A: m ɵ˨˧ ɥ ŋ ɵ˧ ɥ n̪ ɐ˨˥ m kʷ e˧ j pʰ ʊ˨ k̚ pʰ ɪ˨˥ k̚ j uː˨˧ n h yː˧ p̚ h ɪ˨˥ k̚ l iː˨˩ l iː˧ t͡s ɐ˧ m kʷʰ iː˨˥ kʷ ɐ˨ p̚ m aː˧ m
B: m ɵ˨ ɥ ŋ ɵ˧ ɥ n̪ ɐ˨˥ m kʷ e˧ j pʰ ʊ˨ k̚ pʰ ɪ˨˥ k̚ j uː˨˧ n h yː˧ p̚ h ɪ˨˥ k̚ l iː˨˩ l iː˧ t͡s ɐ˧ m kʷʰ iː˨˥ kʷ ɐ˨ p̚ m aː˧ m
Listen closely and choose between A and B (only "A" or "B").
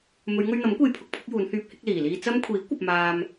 A